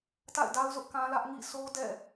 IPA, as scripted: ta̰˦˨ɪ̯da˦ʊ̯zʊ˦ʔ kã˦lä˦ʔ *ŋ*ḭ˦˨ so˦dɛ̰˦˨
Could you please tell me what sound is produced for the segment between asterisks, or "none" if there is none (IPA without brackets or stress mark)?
ŋ